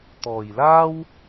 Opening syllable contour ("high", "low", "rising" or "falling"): low